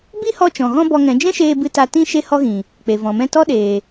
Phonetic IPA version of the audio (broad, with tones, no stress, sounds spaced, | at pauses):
b i˦ h ɔ˧ t͡ʃ ɔ̃˨ ɣ ɔ̃˦ b ɔ˧ ŋ ɛ̃˨˦ d͡ʒ ɛ̃˦ ʃ eː˧ b ɨ˧ t a˧ t ĩ˦ ʃ e˦ h ɔ˦ ɣ ĩ˨ | k͡p e˨ v ɔ̃˨ m ɛ̃˦ t ɔ˦ ɗ eː˨